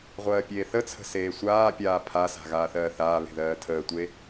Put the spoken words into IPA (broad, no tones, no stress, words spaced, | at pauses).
ʁʷɜːpʲeːθət͡sʰə̤ seːsʷaːpʲaː pʰasa̤ ɣaːθɜːθaːβe̤ ðɜːtʰəːtʷe